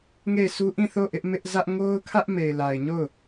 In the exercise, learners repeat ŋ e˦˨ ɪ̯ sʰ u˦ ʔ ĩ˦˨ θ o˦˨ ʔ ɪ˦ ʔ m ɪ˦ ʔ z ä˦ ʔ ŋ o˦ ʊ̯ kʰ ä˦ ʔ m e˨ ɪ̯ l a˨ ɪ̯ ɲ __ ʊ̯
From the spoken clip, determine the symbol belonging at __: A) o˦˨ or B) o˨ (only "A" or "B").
A